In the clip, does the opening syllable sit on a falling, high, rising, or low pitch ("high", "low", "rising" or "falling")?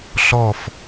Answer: falling